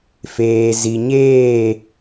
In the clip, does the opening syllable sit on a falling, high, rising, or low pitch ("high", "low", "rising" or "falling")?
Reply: low